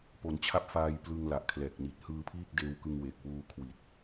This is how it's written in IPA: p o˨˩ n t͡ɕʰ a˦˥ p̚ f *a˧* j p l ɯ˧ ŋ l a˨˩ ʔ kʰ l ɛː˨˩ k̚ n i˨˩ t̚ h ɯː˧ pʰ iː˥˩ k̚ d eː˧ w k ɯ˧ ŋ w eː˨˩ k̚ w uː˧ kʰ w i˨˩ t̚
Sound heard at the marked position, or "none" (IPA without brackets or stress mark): aː˧